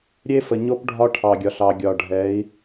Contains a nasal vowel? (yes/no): no